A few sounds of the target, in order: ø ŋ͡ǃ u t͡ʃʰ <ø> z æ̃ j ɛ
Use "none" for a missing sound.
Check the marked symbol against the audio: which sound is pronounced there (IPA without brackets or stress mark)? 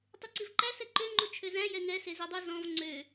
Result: ø